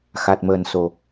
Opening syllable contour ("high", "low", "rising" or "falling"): low